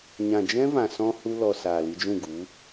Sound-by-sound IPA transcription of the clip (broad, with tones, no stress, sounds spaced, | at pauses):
ɲ ã˨ d͡ʒ ɛ̃˦ v ã˨ s ɔ̃˦ h u˧ l ɔ˨ s aː˨ l i˧ d͡ʒ ũ˦˨ ɡ u˨˦